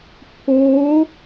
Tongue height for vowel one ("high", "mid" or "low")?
mid